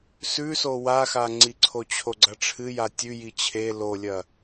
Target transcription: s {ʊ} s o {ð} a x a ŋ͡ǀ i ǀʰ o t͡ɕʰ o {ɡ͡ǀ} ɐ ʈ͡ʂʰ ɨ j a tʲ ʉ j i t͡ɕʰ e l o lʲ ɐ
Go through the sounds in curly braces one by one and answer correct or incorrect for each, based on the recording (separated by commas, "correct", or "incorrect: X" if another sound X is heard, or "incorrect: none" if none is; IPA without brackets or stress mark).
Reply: incorrect: ʉ, incorrect: w, correct